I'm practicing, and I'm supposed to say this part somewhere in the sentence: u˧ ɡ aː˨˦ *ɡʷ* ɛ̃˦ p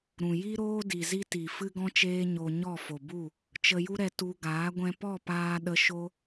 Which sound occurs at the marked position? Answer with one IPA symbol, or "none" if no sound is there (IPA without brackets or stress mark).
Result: ɡʷ